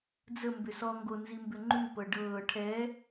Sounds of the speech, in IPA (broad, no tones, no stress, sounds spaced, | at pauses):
d͡z ə m b ʏ s ɔ ŋ ɡ o n z i m b ʏ ŋ͡ǃ ʉ p ɤ ɖ ɤː ʈʰ ɛ